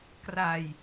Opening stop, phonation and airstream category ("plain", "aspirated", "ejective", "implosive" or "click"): plain